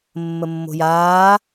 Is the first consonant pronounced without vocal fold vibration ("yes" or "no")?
no